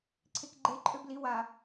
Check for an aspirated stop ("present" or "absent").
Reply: present